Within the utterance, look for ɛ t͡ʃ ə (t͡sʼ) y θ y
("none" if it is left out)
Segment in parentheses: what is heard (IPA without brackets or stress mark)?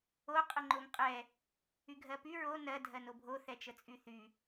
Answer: t͡sʼ